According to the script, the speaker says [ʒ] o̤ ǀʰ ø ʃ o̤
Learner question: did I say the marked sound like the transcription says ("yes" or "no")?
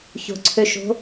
no